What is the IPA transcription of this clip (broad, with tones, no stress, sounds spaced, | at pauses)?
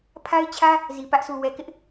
pʰ a˦ ɪ̯ t͡ɕʰ ä˦ | z i˨ p ä˦ ʔ sʰ u˨ w ɛ˨ k ɪ˦ ʔ